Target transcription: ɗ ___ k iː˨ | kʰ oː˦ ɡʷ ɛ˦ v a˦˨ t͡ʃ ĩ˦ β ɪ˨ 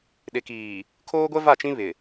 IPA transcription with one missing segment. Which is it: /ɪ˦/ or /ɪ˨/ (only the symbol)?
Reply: ɪ˨